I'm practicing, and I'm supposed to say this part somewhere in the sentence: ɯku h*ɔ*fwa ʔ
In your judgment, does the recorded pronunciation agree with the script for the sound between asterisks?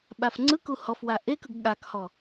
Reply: yes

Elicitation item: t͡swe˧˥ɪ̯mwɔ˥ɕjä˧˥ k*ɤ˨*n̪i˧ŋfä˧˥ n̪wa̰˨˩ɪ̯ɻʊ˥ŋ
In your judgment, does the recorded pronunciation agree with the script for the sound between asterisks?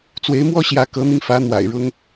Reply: no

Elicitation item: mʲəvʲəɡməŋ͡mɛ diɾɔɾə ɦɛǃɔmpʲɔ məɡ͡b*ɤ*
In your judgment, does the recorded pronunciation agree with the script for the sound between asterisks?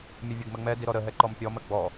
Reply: no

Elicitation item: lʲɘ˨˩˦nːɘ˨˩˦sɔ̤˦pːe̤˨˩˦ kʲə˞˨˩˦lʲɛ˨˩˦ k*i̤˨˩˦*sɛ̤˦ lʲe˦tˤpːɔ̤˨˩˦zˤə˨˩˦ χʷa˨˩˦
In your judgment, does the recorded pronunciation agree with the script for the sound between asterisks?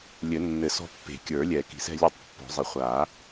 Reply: yes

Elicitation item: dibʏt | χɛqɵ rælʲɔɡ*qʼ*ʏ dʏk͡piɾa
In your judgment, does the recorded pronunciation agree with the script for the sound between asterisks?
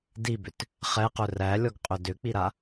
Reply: yes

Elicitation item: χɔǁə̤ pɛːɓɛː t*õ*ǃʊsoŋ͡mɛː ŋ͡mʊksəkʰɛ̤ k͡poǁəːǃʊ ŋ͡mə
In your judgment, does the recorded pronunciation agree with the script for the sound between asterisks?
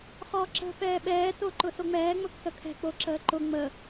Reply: no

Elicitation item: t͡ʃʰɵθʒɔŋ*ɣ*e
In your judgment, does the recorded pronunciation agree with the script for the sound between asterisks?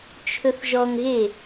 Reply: yes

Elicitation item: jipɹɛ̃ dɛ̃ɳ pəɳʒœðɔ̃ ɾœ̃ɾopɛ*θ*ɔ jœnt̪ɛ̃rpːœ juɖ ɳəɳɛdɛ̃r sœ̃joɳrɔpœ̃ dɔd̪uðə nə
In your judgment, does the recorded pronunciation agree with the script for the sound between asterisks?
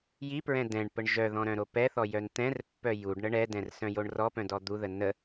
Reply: yes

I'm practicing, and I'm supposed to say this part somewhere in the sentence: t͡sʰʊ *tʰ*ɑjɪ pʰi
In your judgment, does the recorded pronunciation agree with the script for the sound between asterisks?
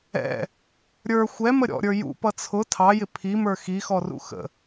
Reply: yes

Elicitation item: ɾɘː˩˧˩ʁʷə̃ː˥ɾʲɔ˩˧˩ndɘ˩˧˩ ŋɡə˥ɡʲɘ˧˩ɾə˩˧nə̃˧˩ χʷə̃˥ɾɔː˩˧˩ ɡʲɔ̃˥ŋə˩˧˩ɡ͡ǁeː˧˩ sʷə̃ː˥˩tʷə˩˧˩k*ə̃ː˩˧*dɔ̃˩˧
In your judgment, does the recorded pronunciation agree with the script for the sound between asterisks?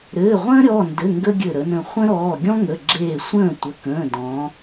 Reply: no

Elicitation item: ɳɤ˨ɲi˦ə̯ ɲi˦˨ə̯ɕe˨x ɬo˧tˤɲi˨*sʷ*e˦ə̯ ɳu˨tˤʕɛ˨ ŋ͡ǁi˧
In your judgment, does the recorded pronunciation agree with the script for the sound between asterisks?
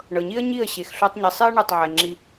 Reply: no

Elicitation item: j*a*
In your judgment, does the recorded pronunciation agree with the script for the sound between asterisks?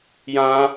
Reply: no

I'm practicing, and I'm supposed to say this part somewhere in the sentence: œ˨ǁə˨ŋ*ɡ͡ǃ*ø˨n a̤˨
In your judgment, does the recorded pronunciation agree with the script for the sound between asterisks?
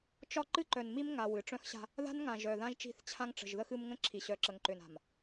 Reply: no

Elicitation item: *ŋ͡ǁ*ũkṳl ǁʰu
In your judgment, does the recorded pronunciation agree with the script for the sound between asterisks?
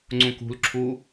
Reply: no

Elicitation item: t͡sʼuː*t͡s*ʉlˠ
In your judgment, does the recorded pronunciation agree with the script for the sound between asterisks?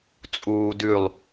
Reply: no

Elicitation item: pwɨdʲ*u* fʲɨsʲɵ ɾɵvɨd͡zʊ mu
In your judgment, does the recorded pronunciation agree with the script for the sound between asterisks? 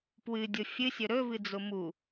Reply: no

